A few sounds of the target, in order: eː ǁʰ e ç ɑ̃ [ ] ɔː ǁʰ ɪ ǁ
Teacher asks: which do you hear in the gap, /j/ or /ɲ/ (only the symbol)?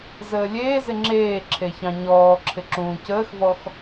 ɲ